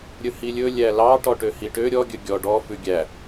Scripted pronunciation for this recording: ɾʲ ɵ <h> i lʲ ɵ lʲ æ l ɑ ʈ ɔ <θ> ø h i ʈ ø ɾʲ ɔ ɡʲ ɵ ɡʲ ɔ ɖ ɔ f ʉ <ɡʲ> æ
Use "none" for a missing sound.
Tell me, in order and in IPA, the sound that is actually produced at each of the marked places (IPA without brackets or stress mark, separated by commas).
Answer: h, ʈ, ɡʲ